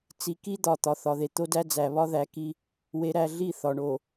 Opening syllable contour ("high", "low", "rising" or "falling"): low